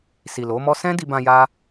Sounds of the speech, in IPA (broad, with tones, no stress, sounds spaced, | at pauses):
s i˨ l o˨˦ m ɔ˦ s ɛ̃˦ d i˧ b ã˧ j a˦